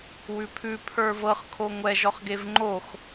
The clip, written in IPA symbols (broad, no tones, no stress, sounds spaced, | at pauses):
w ʉ pʰ ʉ pʰ ə˞ v ɤ χ kʰ o ŋʷ ɛ ʒ ɔ χ ɡ e v ŋ͡ǃ o x